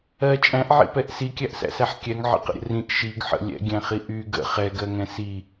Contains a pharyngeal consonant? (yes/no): yes